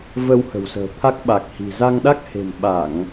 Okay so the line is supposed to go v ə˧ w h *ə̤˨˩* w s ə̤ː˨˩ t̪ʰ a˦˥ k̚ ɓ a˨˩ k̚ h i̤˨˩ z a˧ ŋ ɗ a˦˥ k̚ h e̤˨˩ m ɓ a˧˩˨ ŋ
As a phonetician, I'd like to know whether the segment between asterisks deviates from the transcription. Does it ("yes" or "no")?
no